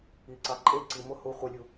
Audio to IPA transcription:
i ǀ ɑ ǃʼ e ǀ i m o h u χʷ ə lʲ u

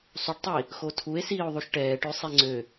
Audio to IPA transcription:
sˤ u ɖ tˤ i | x o tʰ u e̯ s iː o̯ ðˤ u ʃ ʈ ɛː ʈ ø sˤ e ŋ͡ǀ ø

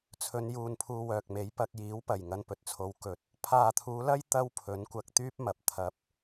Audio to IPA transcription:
t͡sʰ ɵ˨˧ n j uː˨ n pʰ uː˧ w œː˨ k̚ m e˨˥ j p ɐ˧ k̚ j iː˨˥ w p ɐ˨˩ j ŋ ɐ˧ n p ɵ˨ t̚ t͡sʰ o˨˧ w k ɵ˨ t̚ | pʰ aː˨ t̪ʰ uː˨˧ l ɐ˥ j t̪ ɐ˥ w pʰ ɵ˨˥ n kʷ ɐ˧ k̚ t̪ yː˥ p̚ m ɐ˨ p̚ t̪ʰ ɐ˧ p̚

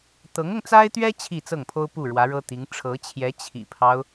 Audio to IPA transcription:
t̪ ɤ˧˥ ŋ ʊ˧ ŋ t͡s a˥ ɪ̯ t̪ ɥ ɛ˥ t͡ɕʰ i˥˧ t͡s ɤ˥˩ ŋ pʰ o˥ ʊ̯ p u˥˩ ɻ w ä˧˥ ɻ ɤ˥ t̪ i˧˥ ŋ ʈ͡ʂʰ ɤ˧˥ t͡ɕʰ j ɛ˧˥ t͡ɕʰ ḭ˨˩ pʰ ɑ˦ ʊ̯

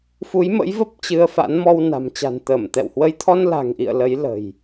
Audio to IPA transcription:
f u˨˦ j m ə̰˧˥ j v ə˦˥ p̚ t͡ɕ ɨ˧ ə̯ f a̰˧˥ n m ɔ˧ w n a̤˨˩ m t͡ɕ a̤˨˩ n t̪ əː˧˩ m t̪ ɛ̰˧˨ w h w ə˧ j t̪ʰ ɔ˧ n l a̤˨˩ ŋ ʔ ḭ˧˨ ə̯ l ə˨˦ j l ə̤˨˩ j

